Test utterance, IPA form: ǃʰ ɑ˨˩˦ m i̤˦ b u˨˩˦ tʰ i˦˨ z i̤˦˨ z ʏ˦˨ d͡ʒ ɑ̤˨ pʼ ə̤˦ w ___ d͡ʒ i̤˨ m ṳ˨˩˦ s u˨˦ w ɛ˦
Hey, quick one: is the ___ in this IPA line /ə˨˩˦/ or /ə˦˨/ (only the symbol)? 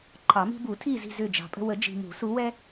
ə˨˩˦